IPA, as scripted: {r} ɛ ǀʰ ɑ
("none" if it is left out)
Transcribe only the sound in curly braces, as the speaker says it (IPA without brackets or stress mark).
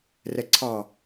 r